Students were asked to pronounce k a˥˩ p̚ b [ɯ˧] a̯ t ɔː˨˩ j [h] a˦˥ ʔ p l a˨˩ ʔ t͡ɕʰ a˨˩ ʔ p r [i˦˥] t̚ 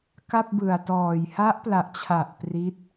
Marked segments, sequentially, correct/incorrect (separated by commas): incorrect, correct, correct